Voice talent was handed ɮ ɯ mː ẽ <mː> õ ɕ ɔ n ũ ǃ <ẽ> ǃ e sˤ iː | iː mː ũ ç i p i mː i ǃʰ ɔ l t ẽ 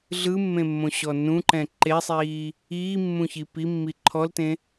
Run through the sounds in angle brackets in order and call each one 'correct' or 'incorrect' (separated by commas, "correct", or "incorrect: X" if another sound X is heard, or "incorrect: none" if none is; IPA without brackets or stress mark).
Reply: correct, incorrect: ɛ̃